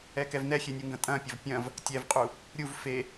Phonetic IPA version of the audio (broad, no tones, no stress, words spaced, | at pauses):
ɛkɛvnɛxʲe nʲuŋɡɐ̃tʼɐ̃pʲɐv pʲɐ̃v | tʲɛvqʼu | ɾʲuv fe